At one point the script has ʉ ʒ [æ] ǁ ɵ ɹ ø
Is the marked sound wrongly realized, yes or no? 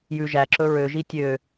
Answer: no